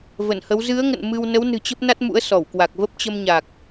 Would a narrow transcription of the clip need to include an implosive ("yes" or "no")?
no